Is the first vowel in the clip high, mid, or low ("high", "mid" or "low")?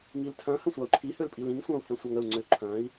high